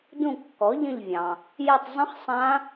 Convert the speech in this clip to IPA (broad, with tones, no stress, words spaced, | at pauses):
dũ˦˨kːɔ˩˥ʎə̃˦˨ʎvʲɑ̃˩ | jɛ˦˨tˤ zˤə̃˦˥χ sˤã˦˥